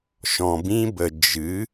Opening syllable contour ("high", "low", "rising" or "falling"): low